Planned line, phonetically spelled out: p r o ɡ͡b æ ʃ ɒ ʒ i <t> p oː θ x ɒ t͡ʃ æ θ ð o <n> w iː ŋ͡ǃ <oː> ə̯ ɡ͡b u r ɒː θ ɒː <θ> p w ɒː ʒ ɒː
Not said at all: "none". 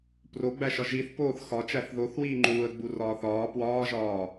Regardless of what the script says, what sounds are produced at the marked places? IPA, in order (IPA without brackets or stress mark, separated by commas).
θ, θ, uː, none